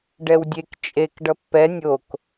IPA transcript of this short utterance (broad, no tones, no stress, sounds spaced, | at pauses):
ɖ ɛ w dʲ e k t͡ʃʼ e k ɖ ʌ pː ɛ nʲ o k